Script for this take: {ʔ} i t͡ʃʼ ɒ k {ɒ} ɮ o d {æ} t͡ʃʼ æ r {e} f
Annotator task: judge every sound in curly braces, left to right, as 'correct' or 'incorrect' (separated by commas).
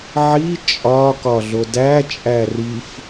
incorrect, correct, correct, incorrect